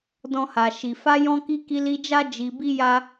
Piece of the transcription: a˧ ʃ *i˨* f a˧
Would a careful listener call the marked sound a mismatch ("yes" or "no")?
no